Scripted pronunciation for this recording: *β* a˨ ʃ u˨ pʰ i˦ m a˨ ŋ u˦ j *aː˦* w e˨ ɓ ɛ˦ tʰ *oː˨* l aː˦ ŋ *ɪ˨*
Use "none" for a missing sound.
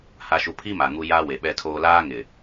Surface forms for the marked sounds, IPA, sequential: h, a˦, oː˦, ɪ˨

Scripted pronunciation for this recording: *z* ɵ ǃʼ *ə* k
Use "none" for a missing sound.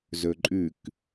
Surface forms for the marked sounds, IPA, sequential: z, ʉ

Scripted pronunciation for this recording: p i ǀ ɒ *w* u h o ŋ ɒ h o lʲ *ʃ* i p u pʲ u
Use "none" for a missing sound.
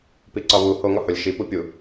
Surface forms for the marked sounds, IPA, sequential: β, ʃ

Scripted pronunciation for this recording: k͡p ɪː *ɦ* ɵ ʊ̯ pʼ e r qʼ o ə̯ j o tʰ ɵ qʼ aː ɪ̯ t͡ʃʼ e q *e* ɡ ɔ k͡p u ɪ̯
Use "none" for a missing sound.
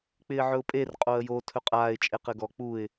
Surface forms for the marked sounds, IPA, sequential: ʕ, ɘ

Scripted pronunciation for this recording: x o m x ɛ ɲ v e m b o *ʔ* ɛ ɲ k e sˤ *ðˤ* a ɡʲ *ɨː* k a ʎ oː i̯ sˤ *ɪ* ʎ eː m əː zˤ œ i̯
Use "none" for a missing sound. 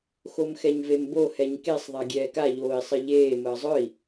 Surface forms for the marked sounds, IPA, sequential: h, ðˤ, ɛː, ɪ

